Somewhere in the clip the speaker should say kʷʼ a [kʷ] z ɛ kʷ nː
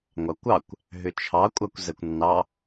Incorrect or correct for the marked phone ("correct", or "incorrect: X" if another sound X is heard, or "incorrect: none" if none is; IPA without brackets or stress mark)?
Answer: correct